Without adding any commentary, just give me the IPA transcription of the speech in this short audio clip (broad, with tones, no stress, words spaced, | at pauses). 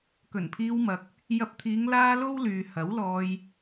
kɵ˨˩npʰiː˧wmɐ˨k̚ | jɐ˧p̚t̪ʰiː˨˧ŋ laː˥ lo˥wlyː˨ hɐ˨˥wlɔː˧j